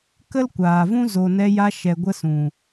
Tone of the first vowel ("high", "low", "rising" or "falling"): high